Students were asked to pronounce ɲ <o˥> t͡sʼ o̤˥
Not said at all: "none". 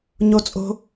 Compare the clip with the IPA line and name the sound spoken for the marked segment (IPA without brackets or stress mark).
o˥